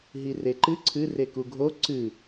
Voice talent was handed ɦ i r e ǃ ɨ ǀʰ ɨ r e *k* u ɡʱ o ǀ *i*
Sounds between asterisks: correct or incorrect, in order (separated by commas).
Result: correct, incorrect